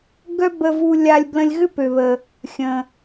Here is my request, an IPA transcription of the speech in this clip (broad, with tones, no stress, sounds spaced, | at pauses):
ɡ œ˥ b ə˧ v u˧ lʲ a˧ lʲ b l ə̃˧ lʲ ɣ ʏ˥ p ø˩ β ə˩ | xʲ ə̃˩